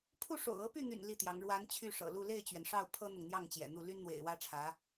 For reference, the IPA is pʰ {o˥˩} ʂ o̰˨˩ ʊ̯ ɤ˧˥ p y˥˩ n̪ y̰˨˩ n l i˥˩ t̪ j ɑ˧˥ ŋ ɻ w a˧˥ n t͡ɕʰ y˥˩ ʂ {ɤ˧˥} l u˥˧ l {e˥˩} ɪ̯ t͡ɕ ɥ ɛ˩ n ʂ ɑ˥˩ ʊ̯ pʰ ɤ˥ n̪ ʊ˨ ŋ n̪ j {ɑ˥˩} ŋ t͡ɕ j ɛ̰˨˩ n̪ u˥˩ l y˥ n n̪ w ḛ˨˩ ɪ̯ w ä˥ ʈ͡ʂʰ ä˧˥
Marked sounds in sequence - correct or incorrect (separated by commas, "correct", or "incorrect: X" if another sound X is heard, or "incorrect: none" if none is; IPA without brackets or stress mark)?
incorrect: u˥˩, incorrect: ɤ̰˨˩, correct, correct